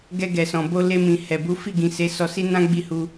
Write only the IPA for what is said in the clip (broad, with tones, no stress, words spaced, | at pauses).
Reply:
ɡɛ˧ɡɛ˨sɔ̃˨bo˧ le˧mĩ˨ hɛ˨ bu˨˦fi˦˨ɡĩ˨ se˨˦sɔ˧si˦ nã˦ ɡ͡bi˦˨hu˧